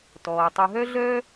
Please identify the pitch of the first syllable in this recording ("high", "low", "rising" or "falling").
low